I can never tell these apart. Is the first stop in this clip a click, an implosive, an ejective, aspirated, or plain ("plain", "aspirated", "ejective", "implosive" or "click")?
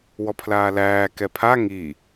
aspirated